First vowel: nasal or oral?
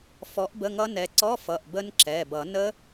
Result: oral